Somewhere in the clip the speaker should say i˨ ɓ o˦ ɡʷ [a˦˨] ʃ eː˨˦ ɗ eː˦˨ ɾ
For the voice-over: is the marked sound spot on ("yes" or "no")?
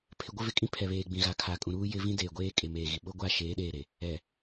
yes